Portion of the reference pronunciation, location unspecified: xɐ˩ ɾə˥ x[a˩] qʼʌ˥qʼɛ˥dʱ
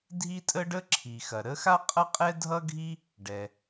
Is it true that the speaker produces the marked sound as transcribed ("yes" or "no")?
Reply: no